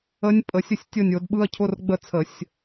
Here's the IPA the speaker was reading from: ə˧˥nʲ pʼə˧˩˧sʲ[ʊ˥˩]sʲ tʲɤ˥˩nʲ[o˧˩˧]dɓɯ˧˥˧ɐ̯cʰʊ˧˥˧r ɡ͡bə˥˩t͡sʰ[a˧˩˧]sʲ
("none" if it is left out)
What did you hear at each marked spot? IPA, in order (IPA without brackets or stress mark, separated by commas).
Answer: ə˥˩, o˧˩˧, ə˧˩˧